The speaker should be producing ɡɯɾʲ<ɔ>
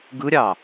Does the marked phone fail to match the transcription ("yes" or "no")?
yes